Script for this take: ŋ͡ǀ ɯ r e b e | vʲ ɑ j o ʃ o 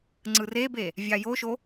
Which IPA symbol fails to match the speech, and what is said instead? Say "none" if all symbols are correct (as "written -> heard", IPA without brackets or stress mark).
none